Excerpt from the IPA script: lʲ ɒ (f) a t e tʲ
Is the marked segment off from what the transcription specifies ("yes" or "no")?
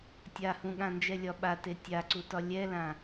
yes